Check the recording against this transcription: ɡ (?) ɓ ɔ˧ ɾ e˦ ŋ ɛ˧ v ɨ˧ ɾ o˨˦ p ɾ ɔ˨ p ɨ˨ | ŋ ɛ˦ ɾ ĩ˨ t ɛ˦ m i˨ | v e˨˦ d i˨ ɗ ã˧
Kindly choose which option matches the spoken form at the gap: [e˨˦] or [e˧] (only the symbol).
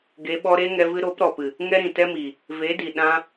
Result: e˨˦